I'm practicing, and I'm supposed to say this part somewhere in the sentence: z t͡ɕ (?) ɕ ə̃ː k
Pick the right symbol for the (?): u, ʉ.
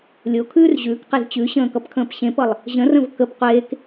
ʉ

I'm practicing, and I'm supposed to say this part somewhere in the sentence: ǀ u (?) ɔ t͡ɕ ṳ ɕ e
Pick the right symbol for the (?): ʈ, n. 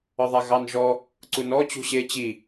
n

